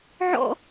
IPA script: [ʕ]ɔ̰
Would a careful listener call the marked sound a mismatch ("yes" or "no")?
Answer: no